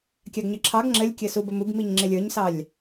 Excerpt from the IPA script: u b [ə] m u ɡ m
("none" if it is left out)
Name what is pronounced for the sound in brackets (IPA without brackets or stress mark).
ə